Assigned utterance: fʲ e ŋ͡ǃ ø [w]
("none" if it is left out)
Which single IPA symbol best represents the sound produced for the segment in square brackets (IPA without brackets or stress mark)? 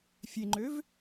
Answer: v